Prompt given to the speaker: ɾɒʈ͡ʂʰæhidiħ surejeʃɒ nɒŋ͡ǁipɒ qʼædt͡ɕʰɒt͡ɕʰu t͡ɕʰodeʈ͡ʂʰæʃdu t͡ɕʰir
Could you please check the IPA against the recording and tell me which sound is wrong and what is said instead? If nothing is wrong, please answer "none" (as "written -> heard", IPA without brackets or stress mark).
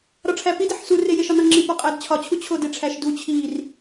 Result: h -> p